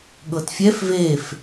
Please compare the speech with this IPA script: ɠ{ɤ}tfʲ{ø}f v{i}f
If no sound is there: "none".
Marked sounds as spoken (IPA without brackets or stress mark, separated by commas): ɤ, ɛ, e